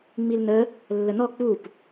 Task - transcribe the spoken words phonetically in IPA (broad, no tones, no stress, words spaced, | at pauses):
ŋ͡milnə | lːənɔ k͡pup